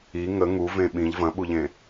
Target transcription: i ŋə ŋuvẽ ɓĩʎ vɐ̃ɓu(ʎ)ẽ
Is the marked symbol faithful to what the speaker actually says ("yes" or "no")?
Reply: yes